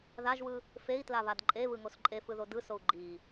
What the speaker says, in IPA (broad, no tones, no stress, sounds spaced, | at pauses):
ð a ʒ w ɯ | f e i̯ t l a β a d ǃʼ e β ɯ ŋ o s ǃʼ e f ɯ ð o d ɯ s o u̯ ɡ͡ǃ i